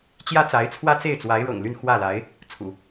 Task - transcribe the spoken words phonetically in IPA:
t͡ɕ j ä˥ t͡s a˧˥ ɪ̯ t͡sʰ w ä˥ t͡s e˥˩ ɪ̯ t͡s w a˧˥ ɪ̯ ɻ ɤ̰˨˩ ŋ l y˥˧ n x w ä˥˩ l a˧˥ ɪ̯ | t͡sʰ ṵ˨˩˦

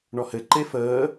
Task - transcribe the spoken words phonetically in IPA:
ɳ ɔ h ɘ ǃ e f əː

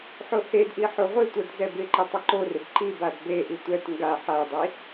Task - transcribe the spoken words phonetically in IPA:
ħ o h e d ʔ i ħ o ʁʷ ɪ tʷ ɛ d z ɛ b ɪ ǃ ɪ tˤ ɪ ǃ o r ɪ b ǃ i b a d b e ʔ i tʷ ɛ t ŋ ɡ a ħ a dˤ i

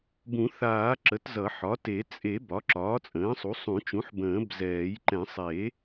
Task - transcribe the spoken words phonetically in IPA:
b ũ˨˩˦ θ aː˨˩˦ ǁ ə˩˥ t z ʌ˨˩˦ ħ ɒ˩˥ t e˨˩˦ t͡sʼ e˨˩˦ b ɒ˩˥ ǁ ɒː˩˥ t͡sʼ ə̃ː˩˥ sˤ u˩˥ sˤ ũ˨˩˦ t͡ʃ ũ˩˥ ħ b ə̃ː˨˩˦ b z ɛː˨˩˦ j ǃ ɛ̃˨˩˦ sˤ e˨˩˦

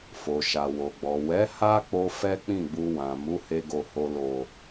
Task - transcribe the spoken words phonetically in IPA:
f o˨ ʃ a˨ w o˨ ɡ͡b ɔ˨ w ɛ˨˦ h a˦ k͡p o˧ f ɛ˦ k͡p ĩ˦˨ ɡ͡b u˧ w ã˨ m u˨˦ h e˧ ɡ o˨ h o˨ l o˨

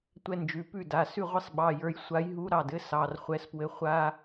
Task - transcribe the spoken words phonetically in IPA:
tʷ ɛ˦ n d͡ʒ ʉ˩˧˩ p ʉ˥˩ d a˩˧˩ s ʉ˥˩ ʁʷ ɘ˥˩ sˤ ɓ ɑ˩˧˩ j ə˞˨˥ j sʷ a˨˥ j ɦ u˨˥ ɾ ɑ˩˧˩ d ɘ˦ s ɑ˩˧˩ r χʷ ɛ˨˥ s p w ɘ˨˥ χʷ a˦

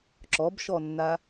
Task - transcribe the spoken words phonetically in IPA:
ǁ ɔ b ʃ ɔ nː a

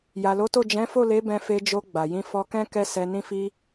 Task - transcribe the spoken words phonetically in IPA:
j a˨ l o˨˦ t o˦˨ d͡ʒ ɛ̃˨˦ f o˦˨ l e˨˦ b ɛ̃˧ f e˧ d͡ʒ o˧ ɡ͡b a˨ j ĩ˧ f ɔ˧ k ɛ̃˦ k ɛ˦ s ɛ˧ n ĩ˦ f i˦

